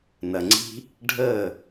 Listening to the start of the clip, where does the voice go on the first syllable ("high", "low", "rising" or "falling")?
low